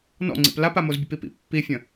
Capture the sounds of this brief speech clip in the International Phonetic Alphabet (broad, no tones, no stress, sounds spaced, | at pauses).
n ɔ̰ ŋ͡ǀ ḭ p l a p a m o z bʲ ə p i p ḭ pː i fʲ ə̃